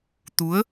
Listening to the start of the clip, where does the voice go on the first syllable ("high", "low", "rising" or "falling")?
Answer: rising